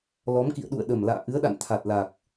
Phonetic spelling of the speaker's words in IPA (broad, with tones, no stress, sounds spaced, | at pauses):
l ɔ˨˦ m k ḭ˧˨ ə̯ ɗ ṵ˧˨ ə̯ ɗ ə˨˩ m l a̰ː˧˨ ʔ ɨ˨˦ ə̯ ɗ a̰˧˨ n t̪ʰ a˨˩ t̚ l a˨˩ k̚